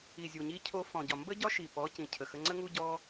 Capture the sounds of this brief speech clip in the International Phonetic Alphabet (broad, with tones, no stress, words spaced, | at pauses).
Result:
i˨zʲu˨ɲi˧cʰo˧ fɔ̃˨ɟɒ˨ mbə˦ɟɒ˦ ʃi˨ pɔ˨˦cĩ˨cʰə˨xə˧ ŋ͡ǀə˦ŋu˦ɟɔ˦